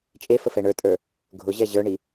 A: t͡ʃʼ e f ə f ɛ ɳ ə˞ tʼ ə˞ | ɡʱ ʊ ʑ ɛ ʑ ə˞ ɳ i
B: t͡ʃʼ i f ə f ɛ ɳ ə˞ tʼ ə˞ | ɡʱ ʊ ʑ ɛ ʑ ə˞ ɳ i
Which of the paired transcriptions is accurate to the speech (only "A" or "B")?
A